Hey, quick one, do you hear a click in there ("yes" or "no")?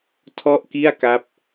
no